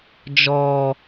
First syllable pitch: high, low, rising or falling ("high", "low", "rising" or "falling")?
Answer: low